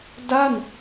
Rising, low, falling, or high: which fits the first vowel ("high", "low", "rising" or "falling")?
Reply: falling